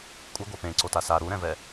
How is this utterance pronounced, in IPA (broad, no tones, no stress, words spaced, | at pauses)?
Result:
kʷʼɯɡʷa pẽǀota sa ɾuɾɛ̃vɛ